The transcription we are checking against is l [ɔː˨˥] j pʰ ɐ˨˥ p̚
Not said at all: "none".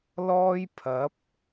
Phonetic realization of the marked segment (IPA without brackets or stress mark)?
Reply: ɔː˥